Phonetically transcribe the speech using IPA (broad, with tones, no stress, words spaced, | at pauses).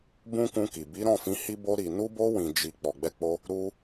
bũ˦kũ˧ki˨ bi˨˦ɾɔ̃˦˨fĩ˨˦ hi˧bo˧ɾi˨ nu˧bo˧ wĩ˨d͡ʒi˨ k͡pɔ˨ɡ͡bɛ˧k͡po˧ | ɾu˧